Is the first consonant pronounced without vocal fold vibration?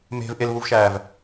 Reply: no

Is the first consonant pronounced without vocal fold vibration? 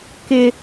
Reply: yes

